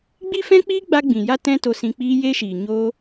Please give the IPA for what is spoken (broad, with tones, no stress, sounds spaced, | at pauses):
ɡ͡b i˦ f ɛ̃˦ k͡p iː˦ ɡ͡b a˦ ɡ͡b ĩ˨ j a˦ t ɛ̃˦ t o˧ s ĩ˧ k͡p iː˦ j eː˦ ʃ iː˨ ɲ oː˦